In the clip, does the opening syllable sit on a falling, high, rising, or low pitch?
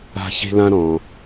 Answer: high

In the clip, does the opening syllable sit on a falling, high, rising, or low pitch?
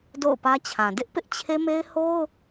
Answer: falling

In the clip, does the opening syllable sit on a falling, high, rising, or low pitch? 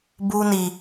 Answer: high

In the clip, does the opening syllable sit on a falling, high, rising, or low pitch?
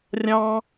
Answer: high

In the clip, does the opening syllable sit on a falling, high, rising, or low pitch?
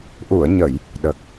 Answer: low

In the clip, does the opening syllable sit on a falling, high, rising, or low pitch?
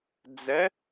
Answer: rising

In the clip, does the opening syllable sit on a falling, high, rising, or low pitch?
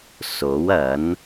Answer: rising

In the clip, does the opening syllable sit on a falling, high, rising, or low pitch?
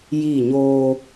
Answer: falling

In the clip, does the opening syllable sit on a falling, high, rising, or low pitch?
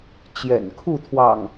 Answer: low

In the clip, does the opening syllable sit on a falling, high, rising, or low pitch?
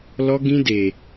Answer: high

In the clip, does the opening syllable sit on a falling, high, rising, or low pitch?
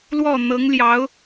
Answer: falling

